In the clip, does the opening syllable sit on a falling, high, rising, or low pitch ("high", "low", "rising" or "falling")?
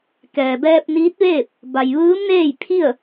low